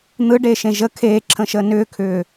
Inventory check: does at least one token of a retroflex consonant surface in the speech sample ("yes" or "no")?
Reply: yes